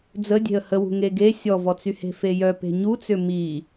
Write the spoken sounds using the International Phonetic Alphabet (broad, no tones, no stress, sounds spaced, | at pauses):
d͡z ə dʲ e̤ ə̯ h ə w ṳ ŋ e ɡ e sʲ ɔ v ɔ t͡s y h e̤ f e j œ p e̤ ɲ u t͡s ʏ m i